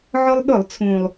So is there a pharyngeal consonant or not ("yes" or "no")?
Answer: yes